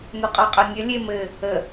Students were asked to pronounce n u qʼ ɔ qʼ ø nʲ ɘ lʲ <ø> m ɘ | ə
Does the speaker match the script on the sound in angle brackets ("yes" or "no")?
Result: no